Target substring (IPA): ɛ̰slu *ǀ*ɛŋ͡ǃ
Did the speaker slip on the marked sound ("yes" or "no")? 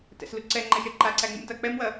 no